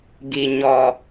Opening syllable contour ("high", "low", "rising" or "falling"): low